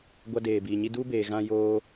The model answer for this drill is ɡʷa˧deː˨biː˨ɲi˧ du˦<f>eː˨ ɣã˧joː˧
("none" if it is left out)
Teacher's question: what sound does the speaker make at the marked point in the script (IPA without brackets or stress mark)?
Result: b